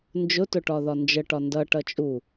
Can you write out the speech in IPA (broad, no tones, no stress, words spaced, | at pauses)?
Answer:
nd͡ʒʊtʊ ʈɒðɒnd͡ʒəʈɒ ndʌʈʌ t͡ʃʼu